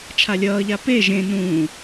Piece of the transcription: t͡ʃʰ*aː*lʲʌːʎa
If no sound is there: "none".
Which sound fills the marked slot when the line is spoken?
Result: a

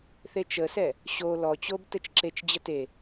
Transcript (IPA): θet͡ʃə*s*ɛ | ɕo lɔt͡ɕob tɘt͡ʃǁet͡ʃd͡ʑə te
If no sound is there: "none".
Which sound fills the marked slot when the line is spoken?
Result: s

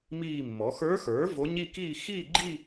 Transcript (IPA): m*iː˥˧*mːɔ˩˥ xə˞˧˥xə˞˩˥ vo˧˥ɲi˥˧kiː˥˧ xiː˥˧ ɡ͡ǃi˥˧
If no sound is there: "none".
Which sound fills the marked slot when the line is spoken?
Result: iː˥˧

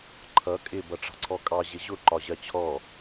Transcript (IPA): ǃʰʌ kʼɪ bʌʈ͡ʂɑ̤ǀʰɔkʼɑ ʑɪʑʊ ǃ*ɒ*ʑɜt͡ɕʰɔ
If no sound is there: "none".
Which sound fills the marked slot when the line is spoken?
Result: ɒ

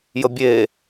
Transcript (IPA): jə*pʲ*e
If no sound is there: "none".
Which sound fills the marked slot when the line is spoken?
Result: bʲ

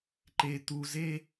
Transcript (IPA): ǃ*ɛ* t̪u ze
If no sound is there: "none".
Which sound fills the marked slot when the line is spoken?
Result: e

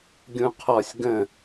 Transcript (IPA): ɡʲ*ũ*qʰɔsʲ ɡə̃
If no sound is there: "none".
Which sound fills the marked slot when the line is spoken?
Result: ũ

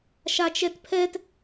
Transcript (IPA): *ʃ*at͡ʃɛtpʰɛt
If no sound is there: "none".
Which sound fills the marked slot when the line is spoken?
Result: ʃ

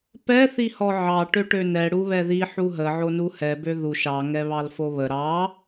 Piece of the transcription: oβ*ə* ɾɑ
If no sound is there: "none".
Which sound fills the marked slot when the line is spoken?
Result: ə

